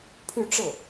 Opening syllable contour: falling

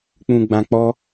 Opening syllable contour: low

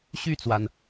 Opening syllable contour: falling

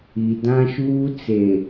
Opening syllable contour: low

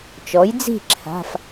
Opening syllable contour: rising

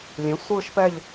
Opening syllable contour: rising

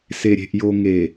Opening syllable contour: low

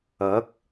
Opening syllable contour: rising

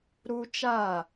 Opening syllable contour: high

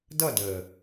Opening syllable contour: falling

